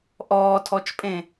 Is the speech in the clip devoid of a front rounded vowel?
yes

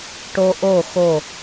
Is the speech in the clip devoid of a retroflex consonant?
no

